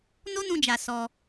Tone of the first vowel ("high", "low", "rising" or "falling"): high